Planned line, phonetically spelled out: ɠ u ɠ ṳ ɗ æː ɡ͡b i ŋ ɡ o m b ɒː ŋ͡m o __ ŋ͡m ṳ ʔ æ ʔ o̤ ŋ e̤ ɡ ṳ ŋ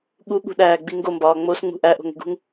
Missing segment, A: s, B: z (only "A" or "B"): A